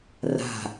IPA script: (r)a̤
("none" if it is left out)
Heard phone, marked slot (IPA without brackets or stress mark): r